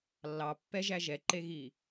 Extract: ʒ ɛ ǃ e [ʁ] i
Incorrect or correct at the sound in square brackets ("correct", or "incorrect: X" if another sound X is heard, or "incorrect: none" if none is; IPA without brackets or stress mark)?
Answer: incorrect: ɣ